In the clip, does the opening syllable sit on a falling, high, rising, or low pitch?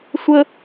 high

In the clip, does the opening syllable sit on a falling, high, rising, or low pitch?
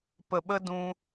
low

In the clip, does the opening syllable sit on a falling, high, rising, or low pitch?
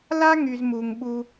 high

